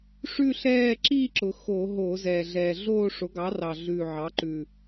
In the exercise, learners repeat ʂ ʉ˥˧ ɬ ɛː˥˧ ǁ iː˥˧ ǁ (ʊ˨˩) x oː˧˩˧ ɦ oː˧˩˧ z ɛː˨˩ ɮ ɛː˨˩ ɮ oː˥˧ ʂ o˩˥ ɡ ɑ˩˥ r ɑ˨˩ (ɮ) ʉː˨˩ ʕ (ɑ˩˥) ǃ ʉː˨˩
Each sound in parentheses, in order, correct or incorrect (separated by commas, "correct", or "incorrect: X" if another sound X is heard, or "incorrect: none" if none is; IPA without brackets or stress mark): correct, correct, correct